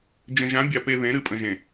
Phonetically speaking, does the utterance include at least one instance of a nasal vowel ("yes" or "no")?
yes